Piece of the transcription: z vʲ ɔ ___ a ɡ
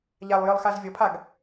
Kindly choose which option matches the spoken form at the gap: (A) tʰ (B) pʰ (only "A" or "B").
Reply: B